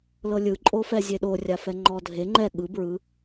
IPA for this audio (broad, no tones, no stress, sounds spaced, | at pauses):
l ɤ lʲ ɯ ǃʼ o f ɛ zʲ e ɗ o rʲ a f ɛ ŋ͡ǃ ɔ dʱ e ŋ͡ǃ ɛ ɠ ɯ b ɹ ɯ